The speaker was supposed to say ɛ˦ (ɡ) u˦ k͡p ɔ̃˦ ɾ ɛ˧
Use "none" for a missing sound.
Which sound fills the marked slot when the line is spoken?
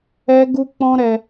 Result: ɡ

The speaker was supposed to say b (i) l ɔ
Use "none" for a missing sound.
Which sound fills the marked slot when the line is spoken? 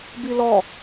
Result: i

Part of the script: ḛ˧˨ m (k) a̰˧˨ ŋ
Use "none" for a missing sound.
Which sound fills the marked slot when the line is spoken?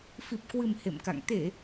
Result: k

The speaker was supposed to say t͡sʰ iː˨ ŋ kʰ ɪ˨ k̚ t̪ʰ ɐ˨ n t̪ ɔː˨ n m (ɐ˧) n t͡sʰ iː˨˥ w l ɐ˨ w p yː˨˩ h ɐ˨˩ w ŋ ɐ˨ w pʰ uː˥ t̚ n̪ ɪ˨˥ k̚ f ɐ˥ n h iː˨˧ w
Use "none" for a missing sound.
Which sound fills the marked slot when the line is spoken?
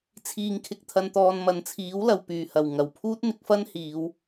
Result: ɐ˨˧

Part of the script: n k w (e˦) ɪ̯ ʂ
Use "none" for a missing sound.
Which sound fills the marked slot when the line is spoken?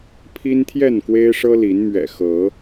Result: e˦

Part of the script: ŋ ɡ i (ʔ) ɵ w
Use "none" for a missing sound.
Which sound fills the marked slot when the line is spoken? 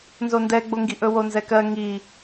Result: ʔ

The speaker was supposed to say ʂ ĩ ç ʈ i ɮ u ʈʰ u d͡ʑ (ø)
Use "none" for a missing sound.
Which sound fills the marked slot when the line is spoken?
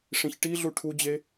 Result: e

